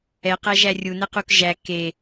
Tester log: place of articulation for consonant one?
uvular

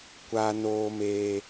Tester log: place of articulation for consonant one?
velar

